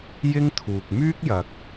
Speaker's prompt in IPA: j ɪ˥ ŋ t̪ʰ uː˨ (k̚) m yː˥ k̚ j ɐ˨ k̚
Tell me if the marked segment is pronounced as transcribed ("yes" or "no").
yes